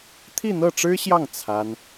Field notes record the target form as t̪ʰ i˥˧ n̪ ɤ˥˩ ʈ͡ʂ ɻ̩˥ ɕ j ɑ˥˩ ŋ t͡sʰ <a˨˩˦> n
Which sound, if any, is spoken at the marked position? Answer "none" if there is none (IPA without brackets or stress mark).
a˥